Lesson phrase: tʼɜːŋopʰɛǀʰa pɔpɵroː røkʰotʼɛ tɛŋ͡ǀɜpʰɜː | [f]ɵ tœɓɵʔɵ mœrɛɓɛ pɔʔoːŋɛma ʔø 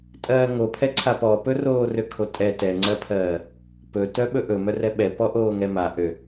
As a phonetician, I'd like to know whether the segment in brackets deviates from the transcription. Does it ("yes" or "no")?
yes